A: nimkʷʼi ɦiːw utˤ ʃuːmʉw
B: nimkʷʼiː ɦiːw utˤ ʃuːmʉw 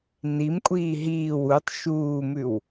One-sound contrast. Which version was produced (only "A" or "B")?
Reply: B